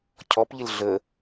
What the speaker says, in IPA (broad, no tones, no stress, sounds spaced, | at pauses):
cʰ ɔ p ʎ ɪ l ɮ ə